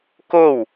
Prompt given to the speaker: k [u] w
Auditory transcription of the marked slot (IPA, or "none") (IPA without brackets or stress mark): o